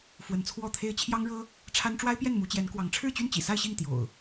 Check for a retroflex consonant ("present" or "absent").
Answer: present